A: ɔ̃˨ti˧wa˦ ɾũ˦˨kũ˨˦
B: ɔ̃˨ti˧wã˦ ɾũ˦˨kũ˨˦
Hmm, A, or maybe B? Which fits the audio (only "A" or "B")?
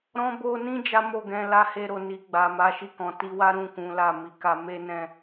A